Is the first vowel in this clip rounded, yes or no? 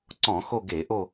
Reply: yes